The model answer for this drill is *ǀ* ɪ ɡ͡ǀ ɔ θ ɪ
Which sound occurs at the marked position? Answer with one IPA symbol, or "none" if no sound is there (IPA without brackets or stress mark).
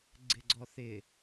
ɡ͡ǀ